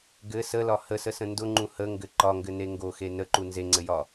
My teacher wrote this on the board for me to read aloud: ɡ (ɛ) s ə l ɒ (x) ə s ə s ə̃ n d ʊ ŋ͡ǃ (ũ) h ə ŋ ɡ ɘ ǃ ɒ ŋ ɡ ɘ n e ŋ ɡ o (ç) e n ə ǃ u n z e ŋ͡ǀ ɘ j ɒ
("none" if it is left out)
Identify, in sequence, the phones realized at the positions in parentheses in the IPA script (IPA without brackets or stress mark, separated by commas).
ɘ, h, ũ, x